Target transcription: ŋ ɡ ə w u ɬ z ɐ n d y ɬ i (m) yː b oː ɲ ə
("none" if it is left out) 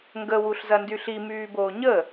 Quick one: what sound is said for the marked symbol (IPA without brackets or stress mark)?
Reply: m